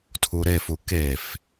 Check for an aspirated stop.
present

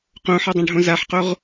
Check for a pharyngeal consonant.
present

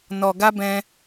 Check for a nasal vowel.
present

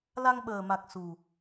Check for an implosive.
present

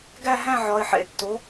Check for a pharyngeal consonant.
present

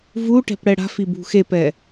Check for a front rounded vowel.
absent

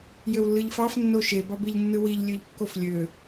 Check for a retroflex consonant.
absent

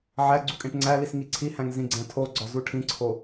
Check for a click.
present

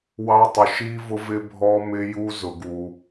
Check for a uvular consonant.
absent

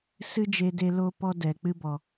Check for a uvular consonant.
absent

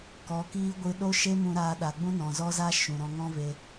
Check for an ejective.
absent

